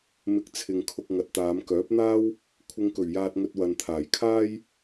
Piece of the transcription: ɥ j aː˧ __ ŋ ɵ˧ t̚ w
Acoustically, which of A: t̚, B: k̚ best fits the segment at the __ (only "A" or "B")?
A